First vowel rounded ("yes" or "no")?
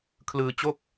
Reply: no